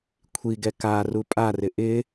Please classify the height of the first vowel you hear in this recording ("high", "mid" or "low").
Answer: high